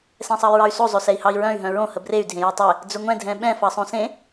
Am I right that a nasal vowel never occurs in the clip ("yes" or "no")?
no